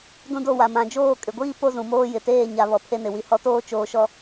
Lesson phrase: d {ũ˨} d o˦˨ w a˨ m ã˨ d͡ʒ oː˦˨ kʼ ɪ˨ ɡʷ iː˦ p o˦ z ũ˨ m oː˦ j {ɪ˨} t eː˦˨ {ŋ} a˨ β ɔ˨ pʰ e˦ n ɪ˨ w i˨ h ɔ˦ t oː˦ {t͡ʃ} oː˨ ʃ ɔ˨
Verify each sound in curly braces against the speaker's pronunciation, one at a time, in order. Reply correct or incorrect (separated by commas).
incorrect, correct, incorrect, correct